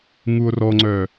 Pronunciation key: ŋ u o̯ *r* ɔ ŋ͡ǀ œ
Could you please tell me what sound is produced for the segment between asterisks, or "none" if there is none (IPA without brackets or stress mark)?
r